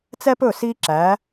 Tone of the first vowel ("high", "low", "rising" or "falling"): high